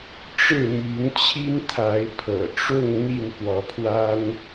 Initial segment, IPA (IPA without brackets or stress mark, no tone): ʈ͡ʂ